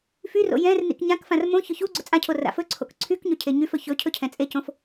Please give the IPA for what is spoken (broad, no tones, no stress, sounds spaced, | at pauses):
f y r o̰ j ɛ̃ r n ḭ k ɲ ã k f ã r m õ ç ɵ ç u ɡ͡ǀ ɵ t͡sʼ ã cʰ o r a̰ f ɵ ǀʰ o̰ k ǀʰ y k ɲ ɵ cʰ e ɲ y f ɵ ç ɵ cʰ ɵ cʰ ɛ̃ t͡sʼ e c õ f